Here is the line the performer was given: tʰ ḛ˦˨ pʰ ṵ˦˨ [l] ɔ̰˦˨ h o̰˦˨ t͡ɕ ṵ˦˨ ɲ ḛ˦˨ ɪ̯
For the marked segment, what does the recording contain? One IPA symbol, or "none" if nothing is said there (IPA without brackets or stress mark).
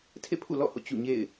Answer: l